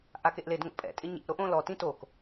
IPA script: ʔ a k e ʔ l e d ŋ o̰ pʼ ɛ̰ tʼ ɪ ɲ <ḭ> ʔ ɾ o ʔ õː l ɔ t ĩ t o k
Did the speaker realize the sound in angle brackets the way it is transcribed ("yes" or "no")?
no